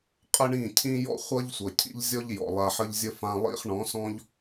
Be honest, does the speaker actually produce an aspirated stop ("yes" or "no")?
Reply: yes